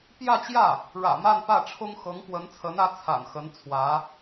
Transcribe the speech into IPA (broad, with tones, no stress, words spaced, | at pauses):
pjä˥˧t͡ɕjä˥˩ | ɻä̰˨˩ma˥˧n pä˥˩ʈ͡ʂʰʊ˥ŋ xɤ˧˥ŋpwə˧˥nt͡sʰə˧˥nä˧˥ t͡sʰa̰˨˩nxə˧˥n t͡sʰwä˧˥